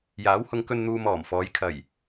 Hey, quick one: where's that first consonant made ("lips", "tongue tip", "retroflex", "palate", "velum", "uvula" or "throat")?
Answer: palate